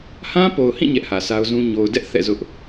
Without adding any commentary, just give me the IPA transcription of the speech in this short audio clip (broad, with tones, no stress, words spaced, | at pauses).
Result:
hã˦po˨ʊ̯hĩ˦˨ ɲɛ˦ʔhä˨sʰa˦ʊ̯zũ˦ ɲo˨ʊ̯dɛ˦ʔ θɛ̰˦˨zʊ˦ʔ